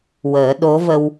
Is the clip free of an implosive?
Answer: no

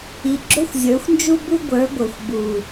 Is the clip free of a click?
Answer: no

